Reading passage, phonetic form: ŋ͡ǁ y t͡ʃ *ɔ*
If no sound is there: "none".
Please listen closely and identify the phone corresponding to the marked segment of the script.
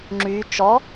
ɔ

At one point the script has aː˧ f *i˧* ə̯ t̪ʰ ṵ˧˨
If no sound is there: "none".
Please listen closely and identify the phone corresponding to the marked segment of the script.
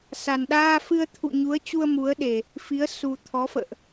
ɨ˧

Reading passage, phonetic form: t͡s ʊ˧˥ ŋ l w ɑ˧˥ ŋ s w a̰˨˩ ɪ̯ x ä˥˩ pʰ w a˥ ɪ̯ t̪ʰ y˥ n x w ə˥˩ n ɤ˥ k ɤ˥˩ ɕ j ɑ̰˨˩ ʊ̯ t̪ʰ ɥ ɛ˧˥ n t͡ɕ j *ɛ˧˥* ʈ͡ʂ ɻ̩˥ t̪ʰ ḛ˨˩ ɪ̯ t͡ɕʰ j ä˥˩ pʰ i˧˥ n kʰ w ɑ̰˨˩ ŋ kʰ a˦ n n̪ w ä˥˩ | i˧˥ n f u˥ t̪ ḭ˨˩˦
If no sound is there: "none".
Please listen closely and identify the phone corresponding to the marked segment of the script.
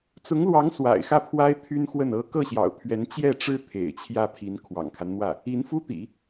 ɛ˥˩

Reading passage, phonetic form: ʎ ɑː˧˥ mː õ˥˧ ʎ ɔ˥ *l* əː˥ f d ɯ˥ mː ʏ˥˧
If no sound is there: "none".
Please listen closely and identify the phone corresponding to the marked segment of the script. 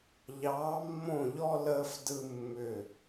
l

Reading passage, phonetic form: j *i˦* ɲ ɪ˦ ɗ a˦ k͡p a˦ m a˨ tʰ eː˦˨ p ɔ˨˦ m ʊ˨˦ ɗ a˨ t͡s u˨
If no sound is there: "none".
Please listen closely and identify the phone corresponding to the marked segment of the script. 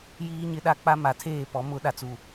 iː˦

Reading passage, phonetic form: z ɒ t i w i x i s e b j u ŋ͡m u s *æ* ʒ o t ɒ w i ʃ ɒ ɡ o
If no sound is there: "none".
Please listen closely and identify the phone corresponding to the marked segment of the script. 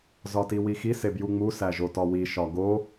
æ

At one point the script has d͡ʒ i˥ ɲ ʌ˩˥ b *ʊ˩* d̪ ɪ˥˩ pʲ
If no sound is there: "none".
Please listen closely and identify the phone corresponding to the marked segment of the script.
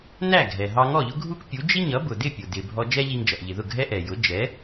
ʊ˩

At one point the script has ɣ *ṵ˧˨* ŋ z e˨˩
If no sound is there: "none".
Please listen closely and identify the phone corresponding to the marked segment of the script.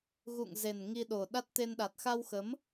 ṵ˧˨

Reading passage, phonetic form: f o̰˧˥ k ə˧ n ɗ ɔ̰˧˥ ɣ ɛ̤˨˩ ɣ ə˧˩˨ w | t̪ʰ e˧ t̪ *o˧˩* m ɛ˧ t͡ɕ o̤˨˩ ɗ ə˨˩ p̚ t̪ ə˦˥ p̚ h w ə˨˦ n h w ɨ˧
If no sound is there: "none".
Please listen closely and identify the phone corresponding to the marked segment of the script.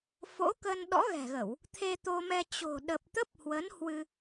o˧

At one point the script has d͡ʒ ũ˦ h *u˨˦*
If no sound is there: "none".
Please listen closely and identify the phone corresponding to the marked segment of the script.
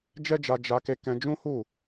u˦˨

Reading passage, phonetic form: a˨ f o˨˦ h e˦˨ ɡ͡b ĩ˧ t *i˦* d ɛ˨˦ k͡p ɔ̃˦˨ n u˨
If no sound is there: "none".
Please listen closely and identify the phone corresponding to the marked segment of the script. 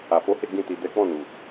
i˨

